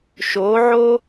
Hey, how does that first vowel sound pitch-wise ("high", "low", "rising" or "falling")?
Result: rising